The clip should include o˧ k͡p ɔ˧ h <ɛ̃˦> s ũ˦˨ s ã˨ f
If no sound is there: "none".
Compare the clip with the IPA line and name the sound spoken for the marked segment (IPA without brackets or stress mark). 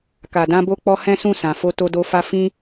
ɛ̃˦